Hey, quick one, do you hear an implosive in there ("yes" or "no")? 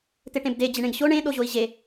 yes